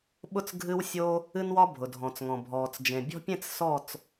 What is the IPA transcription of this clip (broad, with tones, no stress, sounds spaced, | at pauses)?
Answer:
ɓ ʊ˥˨ t͡s ɡʱ ɨ˦ w sʲ o˦ | ɨ˦ n w ɒ˦ bʱ ʊ˩ dʱ ɔ̃˩ t͡s ŋ ɔ̃˩ bʱ ɔː˩ t͡s d͡ʒ ẽ˩ bʲ ɔ̤˦ pʲ ẽ˥˨ t͡s s ɔ˥˨ t͡s